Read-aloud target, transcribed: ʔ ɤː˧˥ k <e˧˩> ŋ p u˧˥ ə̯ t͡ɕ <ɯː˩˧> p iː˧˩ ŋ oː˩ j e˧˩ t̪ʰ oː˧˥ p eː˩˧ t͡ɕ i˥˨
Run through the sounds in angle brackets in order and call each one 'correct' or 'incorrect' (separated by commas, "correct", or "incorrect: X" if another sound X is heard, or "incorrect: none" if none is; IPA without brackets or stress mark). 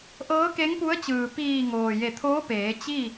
incorrect: e˧˥, incorrect: ɯː˩